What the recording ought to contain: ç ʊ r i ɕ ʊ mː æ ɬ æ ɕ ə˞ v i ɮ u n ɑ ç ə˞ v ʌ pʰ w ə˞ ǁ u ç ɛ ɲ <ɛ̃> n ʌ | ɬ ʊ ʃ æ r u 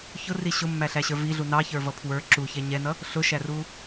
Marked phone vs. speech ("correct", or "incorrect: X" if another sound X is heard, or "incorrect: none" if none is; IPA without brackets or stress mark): incorrect: ɛ